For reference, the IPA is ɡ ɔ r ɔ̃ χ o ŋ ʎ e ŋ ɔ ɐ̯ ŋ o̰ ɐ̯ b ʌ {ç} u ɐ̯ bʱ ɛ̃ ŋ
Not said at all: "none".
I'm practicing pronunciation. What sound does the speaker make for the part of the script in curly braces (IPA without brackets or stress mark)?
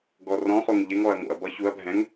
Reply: ç